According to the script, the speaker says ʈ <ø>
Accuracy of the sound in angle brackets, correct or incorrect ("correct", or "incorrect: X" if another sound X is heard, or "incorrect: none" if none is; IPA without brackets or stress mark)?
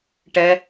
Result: incorrect: ɛ